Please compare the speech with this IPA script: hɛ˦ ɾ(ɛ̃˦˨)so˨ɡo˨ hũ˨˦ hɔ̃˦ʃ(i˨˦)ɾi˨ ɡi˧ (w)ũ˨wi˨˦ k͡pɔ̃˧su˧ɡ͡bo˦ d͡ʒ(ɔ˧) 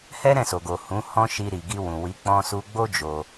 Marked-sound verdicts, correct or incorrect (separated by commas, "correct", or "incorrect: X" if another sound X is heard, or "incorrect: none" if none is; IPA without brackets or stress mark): correct, incorrect: i˧, correct, incorrect: o˧